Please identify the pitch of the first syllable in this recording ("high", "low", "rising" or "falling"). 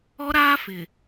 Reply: high